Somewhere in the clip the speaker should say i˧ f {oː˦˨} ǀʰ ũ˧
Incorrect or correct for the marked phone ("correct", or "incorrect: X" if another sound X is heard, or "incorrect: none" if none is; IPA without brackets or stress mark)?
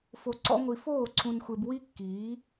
correct